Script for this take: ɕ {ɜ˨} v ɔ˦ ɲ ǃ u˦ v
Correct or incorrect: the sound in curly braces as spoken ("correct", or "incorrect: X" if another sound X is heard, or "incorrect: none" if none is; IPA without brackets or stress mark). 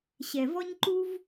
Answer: incorrect: ɛ˨